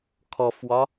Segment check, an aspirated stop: present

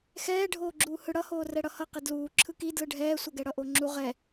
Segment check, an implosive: absent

